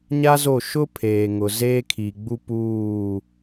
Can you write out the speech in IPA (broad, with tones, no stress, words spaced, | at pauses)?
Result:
ɲa˦zo˦˨ ʃʊ˦ pʰeː˨ŋʊ˨ zeː˦kʰi˨ɡ͡bu˦ puː˦˨